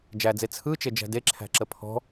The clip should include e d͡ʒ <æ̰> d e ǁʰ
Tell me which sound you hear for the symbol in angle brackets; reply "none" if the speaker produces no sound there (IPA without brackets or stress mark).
æ̤